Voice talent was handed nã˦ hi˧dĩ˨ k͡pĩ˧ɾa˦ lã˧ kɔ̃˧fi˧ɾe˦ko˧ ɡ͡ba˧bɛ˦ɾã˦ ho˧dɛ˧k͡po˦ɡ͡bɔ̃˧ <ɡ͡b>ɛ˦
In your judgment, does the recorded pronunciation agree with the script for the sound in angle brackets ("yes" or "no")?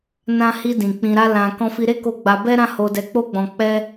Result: no